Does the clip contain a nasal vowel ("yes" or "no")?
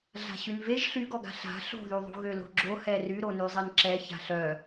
no